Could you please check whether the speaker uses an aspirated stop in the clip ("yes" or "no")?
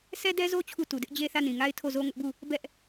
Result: yes